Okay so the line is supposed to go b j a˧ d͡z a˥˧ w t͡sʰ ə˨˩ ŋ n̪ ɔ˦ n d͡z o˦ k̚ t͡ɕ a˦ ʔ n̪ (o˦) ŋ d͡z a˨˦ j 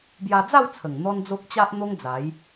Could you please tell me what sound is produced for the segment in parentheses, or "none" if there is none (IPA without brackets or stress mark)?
o˦